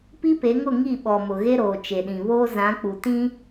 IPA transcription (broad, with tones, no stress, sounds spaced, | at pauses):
p i˦ p e˨˦ ŋ ʊ˦˨ ŋ i˦˨ ɓ ɔ˨ m ʊ˨ ɣ e˦ ɾ oː˨ t͡ʃ e˨ ɗ ĩ˨ β oː˦ z ã˨˦ k͡p u˨ t ĩ˦